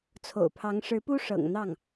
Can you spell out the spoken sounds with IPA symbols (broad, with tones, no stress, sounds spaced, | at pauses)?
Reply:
t͡sʰ o̰˨˩ ʊ̯ pʰ ɑ˧˥ ŋ ʂ ɻ̩˧˥ p u˥ ʂ ɤ̰˨˩ ŋ n̪ ɑ˥˩ ŋ